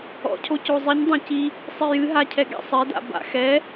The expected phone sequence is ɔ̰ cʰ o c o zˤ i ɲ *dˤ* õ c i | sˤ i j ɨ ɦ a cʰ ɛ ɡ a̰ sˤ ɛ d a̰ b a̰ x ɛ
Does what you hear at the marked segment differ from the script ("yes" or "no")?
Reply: no